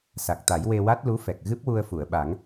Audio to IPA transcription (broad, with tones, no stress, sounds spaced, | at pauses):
s a˨˩ k̚ t̪ a˨˩˦ j w e˧ w a˦˥ t̚ l u˧˥ f ɛ˨˩ k̚ ɣ ɨ˦˥ p̚ w u˧ ə̯ f u˨˩˨ ə̯ ɓ a˨˩˦ ŋ